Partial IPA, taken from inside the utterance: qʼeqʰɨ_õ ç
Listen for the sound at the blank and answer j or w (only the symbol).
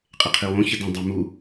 w